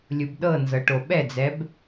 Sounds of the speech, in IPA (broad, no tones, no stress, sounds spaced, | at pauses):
lʲ u b ɗ ɤ n z ɤ ʈ o ɓ ɛ d͡z ɛ b